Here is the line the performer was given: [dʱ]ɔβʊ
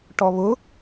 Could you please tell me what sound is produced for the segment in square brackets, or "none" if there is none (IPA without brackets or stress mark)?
ʈ